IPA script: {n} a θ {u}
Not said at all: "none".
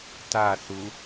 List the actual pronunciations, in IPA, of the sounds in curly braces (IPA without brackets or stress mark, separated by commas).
t, u